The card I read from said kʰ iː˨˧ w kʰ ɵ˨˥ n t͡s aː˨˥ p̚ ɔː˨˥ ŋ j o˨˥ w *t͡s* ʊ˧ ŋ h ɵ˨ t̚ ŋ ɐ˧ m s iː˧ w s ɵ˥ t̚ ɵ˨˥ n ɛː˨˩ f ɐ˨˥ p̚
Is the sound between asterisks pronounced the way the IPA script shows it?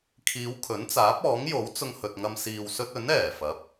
yes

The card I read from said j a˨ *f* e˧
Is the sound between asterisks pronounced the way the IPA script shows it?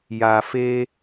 yes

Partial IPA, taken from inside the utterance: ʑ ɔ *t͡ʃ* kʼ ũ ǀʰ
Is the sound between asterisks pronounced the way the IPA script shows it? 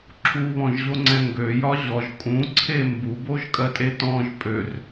no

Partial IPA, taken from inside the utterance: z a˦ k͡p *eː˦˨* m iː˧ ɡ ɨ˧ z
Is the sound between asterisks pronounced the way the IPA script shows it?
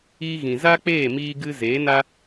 yes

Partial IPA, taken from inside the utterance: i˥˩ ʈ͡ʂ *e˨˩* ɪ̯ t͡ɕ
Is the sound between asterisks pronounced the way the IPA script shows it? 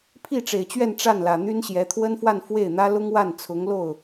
yes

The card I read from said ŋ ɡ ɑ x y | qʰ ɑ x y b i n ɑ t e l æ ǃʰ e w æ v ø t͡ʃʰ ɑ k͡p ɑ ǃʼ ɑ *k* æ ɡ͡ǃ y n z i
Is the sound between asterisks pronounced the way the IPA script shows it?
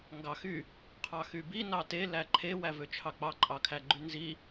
no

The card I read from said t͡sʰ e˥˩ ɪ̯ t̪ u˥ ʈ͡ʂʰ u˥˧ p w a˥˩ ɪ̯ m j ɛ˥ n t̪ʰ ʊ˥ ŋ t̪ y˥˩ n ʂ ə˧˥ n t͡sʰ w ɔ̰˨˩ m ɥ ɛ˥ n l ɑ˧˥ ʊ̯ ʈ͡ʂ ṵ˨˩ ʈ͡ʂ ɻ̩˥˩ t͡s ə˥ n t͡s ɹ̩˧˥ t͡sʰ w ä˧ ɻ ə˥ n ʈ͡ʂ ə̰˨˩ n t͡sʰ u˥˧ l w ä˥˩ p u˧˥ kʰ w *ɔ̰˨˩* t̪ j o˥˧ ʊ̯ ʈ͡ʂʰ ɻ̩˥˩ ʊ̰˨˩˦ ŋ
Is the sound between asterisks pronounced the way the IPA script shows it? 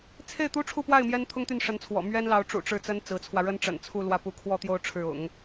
no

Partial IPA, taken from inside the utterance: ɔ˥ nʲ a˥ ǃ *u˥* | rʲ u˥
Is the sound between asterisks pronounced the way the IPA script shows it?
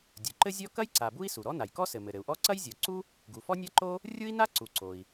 no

